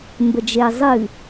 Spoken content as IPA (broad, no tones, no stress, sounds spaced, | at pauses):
m b ə d͡ʒ e zˤ ɨ